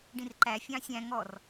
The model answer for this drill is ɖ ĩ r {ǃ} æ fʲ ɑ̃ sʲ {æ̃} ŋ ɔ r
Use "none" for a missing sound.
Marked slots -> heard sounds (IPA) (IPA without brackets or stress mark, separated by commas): ǃ, æ̃